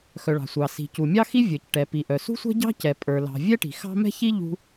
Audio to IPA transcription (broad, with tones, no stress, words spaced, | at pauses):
xœ˩ɭɑ̤˩ sʷɑ˩ si̤˩ cu˩mʲɑ˥xi˥vʲə˞˩c ʈɛ˩pi˩ ʔœ˩sṳ˥sʷɛ̤˥ɟɑ̤˥ cɛ˩pʼə˞˩lɑ̤˩ vʲɛ˥ʈi̤˩ xɑ̤˥ mɛ̤˥çi˥ ʎṳ˥